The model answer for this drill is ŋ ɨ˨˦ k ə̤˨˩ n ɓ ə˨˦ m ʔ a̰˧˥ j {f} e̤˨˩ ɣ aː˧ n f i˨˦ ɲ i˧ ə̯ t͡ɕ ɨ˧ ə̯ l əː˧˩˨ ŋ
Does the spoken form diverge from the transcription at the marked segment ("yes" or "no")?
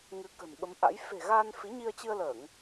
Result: no